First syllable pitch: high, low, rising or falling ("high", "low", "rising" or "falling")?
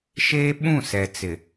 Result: high